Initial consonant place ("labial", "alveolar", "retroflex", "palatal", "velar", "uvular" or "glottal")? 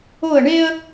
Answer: retroflex